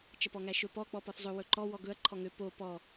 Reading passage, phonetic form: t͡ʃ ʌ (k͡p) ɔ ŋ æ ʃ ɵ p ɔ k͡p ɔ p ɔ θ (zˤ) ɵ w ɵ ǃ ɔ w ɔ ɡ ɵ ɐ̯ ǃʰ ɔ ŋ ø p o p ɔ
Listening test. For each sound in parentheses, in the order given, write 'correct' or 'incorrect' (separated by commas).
incorrect, correct